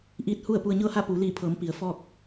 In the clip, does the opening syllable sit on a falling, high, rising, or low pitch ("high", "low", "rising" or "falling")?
rising